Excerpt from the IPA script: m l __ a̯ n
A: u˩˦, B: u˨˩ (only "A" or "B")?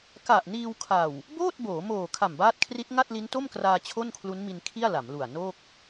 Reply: B